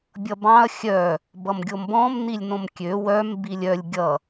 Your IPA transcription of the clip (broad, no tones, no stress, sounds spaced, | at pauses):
bʲ ʌ b ɑ̃ ɐ̯ xʲ œ | b ʌ m ɡʲ o m b ɔ̃ m n i lʲ n õ m kʲ ø w œ m b i lʲ œ lʲ ɡʲ ʌ